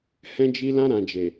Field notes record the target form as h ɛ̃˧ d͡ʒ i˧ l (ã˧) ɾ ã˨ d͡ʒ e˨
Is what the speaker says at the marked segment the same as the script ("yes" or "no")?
yes